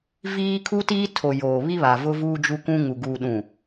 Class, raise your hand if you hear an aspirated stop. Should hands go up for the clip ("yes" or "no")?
yes